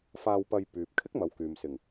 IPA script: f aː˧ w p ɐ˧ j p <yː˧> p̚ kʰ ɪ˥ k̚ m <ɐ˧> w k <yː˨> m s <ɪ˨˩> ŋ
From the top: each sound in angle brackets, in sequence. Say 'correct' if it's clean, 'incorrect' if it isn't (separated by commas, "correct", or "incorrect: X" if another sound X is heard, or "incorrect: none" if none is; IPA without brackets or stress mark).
incorrect: yː˨, incorrect: ɐ˨˧, correct, correct